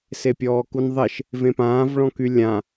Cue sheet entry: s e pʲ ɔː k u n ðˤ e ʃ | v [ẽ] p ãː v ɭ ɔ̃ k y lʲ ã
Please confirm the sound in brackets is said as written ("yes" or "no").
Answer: yes